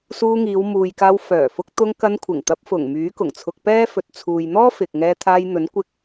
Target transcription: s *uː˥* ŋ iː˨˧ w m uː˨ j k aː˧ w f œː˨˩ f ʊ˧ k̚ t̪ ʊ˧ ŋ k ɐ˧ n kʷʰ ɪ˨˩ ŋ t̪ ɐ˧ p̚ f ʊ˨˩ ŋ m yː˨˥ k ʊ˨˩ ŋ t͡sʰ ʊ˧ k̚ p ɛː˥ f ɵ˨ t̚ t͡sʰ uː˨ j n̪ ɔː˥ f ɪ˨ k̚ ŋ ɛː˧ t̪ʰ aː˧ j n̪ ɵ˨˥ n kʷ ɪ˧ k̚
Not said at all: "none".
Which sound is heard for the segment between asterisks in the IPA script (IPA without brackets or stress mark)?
uː˧